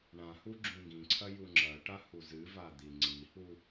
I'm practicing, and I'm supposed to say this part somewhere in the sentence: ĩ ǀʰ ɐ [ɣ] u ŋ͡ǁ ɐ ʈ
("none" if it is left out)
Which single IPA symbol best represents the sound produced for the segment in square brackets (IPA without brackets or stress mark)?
j